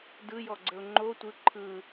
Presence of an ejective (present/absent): absent